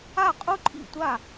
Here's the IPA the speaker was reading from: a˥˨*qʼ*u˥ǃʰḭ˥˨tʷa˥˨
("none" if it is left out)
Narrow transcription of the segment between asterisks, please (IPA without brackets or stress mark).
qʼ